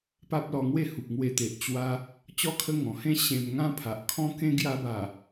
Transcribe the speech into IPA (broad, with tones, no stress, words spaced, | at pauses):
pa˦p̚lɔ˧ŋwe˥˧ hu˨p̚ŋwe˧t̪e˨ʔ t͡ɕwa˧ | t͡ɕɔ˦kʰə˦ ŋɔ̃˨˩hẽ˦ɕẽ˧m ŋã˦pʰa˨ʔ kʰɔ̃˦kẽ˦ ɡja˧ba˨˩